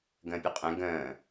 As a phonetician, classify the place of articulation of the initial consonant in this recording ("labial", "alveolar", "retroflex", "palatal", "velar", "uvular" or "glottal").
velar